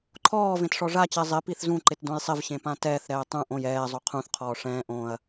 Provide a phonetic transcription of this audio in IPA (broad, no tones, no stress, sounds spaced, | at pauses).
ǃʰ ɔː v ẽ t ʂ ɔ ʐ a t͡ɕ ɛ zˤ ɪ p i θ z ũ ǃ ɪ t d õ j sˤ ɪ v ɕ ẽ p ã t ɛː θ ɾ ɛː tˤ ũ ʔ õ j ɛː zˤ o qʰ ũ θ qʰ ɔː ʂ ɛ̃ː ʔ õ ɐ̯